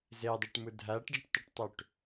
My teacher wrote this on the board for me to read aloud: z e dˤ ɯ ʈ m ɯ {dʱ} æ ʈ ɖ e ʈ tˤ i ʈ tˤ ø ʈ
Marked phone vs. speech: correct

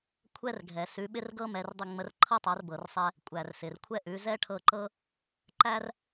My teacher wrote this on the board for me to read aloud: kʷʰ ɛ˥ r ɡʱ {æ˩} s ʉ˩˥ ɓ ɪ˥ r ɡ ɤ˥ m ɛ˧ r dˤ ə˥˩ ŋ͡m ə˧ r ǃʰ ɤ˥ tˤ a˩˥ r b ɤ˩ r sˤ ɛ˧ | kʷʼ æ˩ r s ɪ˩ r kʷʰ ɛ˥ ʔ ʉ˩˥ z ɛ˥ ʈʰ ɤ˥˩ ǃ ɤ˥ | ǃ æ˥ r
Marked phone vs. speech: incorrect: ɛ˩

